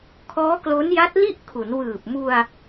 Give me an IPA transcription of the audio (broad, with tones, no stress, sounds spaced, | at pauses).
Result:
kʰ ɔː˦˥ k l o˦˥ n j a˦˥ t̚ l i˥˩ ʔ kʰ u˩˦ n w ɯː˨˩ p̚ m u˧ a̯